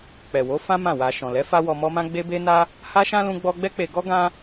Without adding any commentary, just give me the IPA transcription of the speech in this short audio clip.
k͡p ɛ˨ w o˨˦ f ã˦ m ã˦˨ w a˧ ʃ ɔ̃˨ l ɛ˨˦ f a˦ w ɔ˧ m ɔ˦ m ã˦ ɡ͡b e˦ b e˦ n a˦ | h a˦ ʃ ã˦ l ũ˦ ɡ͡b ɔ˦ ɡ͡b ɛ˦ k͡p e˧ ɡ ɔ˦ ɡ ã˦

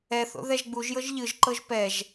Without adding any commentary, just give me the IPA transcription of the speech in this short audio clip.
ɛ θ o̰ ð ɛ ʒ ɡ͡b u ʒ j ɤ ʒ ʎ ɯ ʒ ǃ ɤ ʒ p ɛ ʒ

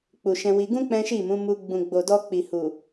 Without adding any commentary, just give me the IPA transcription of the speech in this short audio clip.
k͡p u˨ ʃ ɛ̃˧ w i˧ ɡ ũ˦ k͡p ɛ̃˦ ʃ i˦˨ m ũ˨˦ m u˧ ɡ͡b ũ˨ ɡ͡b o˨ d ɔ˧ k͡p i˨ h u˨

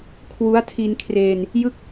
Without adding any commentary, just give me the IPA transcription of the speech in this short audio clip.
kʰ w u˦˥ a̯ tʰ i˧ n kʰ r eː˧ n | j ɯ˥˩ k̚

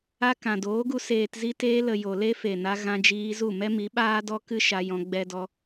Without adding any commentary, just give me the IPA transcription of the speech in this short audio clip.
a˧ k ã˨ d oː˨˦ ɡ u˧ s eː˨ t z i˧ t eː˧ l ə˨ j o˨ l e˦ f e˨ n a˧ ɣ ã˧ d͡ʒ iː˧ z u˦˨ m ɛ˦ m i˨˦ ɓ aː˦ d ɔ˦ k ɨ˦ ʃ a˧ j ɔ̃˧ ɡ͡b ɛ˦ d ɔ˦

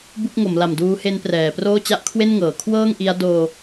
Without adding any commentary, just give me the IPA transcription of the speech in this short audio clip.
b u˥˩ k̚ ŋ o˩˦ m l a˨˩ m d uː˦˥ h e˦˥ n p r ɛː˩˦ p r oː˥˩ t͡ɕ a˥˩ ʔ kʰ w e˥˩ n ŋ ɤː˩˦ kʰ w ɤː˥˩ ŋ ʔ i˦˥ a̯ d oː˧

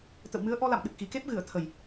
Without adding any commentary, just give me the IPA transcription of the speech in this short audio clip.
t̪ ə̰˧˨ w m ɨ˨˦ ə̯ ʔ ɔ˧ l a̰˧˨ m ɗ ɨ˨˩ k̚ x i˨˩ k e˦˥ p̚ ɣ ɨ˧˩ ə̯ t̪ʰ ə˨˩ j

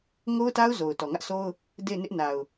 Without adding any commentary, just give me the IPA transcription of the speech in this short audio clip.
ŋ o˦ ʊ̯ t a˦ ʊ̯ z o˨ ʊ̯ t ɔ˨ ŋ ä˦ ʔ sʰ o˦ ʊ̯ | d e˦˨ ɪ̯ n ɪ˦ ʔ n a˨ ʊ̯

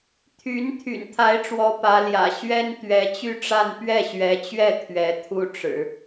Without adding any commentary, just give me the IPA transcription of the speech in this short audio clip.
t̪ʰ y˧˥ n t̪ʰ y̰˨˩ n t̪ʰ a˧˥ ɪ̯ ʈ͡ʂ w ɔ˧˥ p ä˧˥ l j ä̰˨˩ ɕ ɥ ɛ˥ n t̪ ɥ ɛ˧˥ t͡ɕ y˥˧ ʈ͡ʂ a˥˧ n p ɥ ɛ˥˩ ɕ ɥ ɛ˧˥ t͡ɕ ɥ ɛ˥˩ t̪ʰ ɥ ɛ˧˥ t̪ʰ u˥ ʈ͡ʂ ɻ̩˨˩˦

